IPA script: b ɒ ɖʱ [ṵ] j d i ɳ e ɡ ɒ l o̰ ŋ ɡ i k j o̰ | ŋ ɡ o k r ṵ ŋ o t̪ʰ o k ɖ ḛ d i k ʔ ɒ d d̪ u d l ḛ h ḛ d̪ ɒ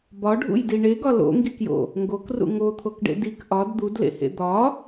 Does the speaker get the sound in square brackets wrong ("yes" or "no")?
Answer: no